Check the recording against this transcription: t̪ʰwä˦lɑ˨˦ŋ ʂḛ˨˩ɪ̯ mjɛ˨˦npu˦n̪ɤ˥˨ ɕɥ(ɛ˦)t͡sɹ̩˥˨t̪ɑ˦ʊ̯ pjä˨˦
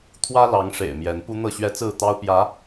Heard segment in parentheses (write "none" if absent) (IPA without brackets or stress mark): ɛ˦